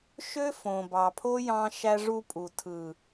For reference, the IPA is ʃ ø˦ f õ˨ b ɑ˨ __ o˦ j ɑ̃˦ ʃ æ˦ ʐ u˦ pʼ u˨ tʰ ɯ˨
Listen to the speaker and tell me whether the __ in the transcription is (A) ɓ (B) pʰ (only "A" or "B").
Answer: B